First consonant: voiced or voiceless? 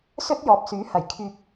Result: voiceless